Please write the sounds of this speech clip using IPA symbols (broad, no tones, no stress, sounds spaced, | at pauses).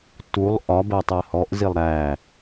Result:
t u lˠ ʔ ɒ b ɜ tˤ ɜ h ɔ ʔ z i lˠ ɾ æ